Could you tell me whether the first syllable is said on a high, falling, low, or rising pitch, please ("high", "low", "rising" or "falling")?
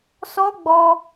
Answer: high